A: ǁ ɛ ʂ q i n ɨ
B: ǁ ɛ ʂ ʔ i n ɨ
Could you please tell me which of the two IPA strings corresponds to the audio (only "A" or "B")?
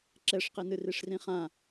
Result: A